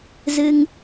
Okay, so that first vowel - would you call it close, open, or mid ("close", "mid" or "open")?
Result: close